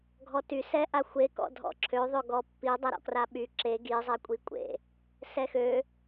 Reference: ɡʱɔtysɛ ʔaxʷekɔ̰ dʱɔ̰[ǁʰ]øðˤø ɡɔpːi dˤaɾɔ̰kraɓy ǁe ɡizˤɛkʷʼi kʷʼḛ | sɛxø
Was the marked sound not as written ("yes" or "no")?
no